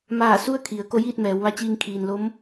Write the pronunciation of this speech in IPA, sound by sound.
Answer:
m aː˧˩ s u˥˨ ə̯ kʰ i˩˧ ə̯ k o˧˥ j iː˥˨ t̚ m ɛː˩˧ w ʋ a˧˥ t͡ɕ iː˧ ŋ kʰ iː˩ n l o˧˥ m

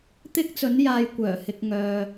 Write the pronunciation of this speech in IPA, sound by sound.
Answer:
t̪ ɪ˥ k̚ t͡s ɵ˨˥ n j aː˧ j kʷ œː˨˩ h ɪ˨ k̚ ŋ œː˨

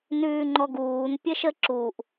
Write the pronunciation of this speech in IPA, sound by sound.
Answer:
n ʉː ŋ͡ǃ ɔ ɡ uː n pʲ ə ʃ ə ǁ u ʔ

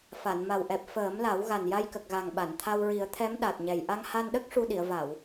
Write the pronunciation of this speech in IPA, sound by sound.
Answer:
f a˨˩˨ n m a˨˩ w ʔ ɛ˨˩ p̚ f əː˨˩˦ m l a˨˩˦ w ɣ a˨˩ n j a˧ j k ə˨˩ k̚ ɣ a˨˩ ŋ ɓ a˨˩˨ n t̪ʰ a˧ w ɹ i˨˩˦ ə̯ t̪ʰ ɛ˧˥ m ɗ a˨˩ t̚ ɲ ɛ˨˩ j ʔ a˧ ŋ h a˧ n ɗ ə˦˥ k̚ ʂ u˧ ɗ i˨˩˨ ə̯ v a˨˩˨ w

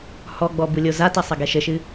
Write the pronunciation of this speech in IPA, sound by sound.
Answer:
h ɔ ɡ͡b ɔ b u lʲ o z a t ɐ sˤ ɐ ɡ ɛ ʃ ɘ ʃ ɨ

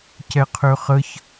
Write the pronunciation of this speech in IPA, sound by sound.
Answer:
c ɛ qʰ ø χ ə ç

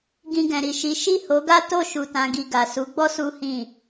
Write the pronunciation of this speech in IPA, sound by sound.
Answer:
ɡ ĩ˧ ɡ ɛ̃˨ ɾ i˨ ʃ i˨˦ ʃ i˦˨ h o˨˦ ɡ a˦ t o˦˨ ʃ u˨ t ã˨ ɡ i˨ ɡ a˨ s u˨˦ ɡ͡b ɔ˦ s u˦ h ĩ˦˨

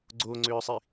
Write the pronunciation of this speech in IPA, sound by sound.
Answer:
ɡ͡ǀ o ŋ͡ǀ ʏː sˤ i

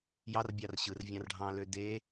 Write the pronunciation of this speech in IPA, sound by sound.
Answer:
j ɑ r bʲ ɑ r ɕ ɯ r vʲ ɑ̃ r ɖʱ ɑ̃ l ø d e

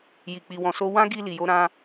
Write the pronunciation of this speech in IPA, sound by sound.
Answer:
j i˨ k͡p i˨ w ɔ̃˨ s o˧ w ã˦ ɡ i˧ l i˨ j o˧ ɾ ã˧

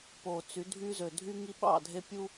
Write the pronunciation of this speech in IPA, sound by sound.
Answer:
p o˨ t͡s y˨˦ dʱ y˦ z ø˨ dʱ y˦ ŋ i˦ ɓ ɑ̰˦˨ dʱ e˦ pʲ u˦

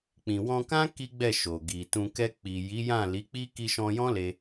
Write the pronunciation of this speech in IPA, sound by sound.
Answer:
k͡p ĩ˨ w ɔ̃˧ k ã˦ k i˦ ɡ͡b ɛ˦˨ ʃ o˨ ɡ i˨ t ũ˧ k ɛ˧ k͡p i˨ j i˨˦ j ã˦˨ l i˨˦ k͡p i˦ k i˧ ʃ ɔ̃˧ j ɔ̃˦ l e˧

